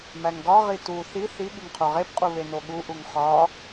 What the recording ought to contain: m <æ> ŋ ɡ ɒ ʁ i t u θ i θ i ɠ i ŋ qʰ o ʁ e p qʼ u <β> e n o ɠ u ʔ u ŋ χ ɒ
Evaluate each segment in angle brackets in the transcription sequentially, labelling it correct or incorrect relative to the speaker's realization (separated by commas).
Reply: correct, correct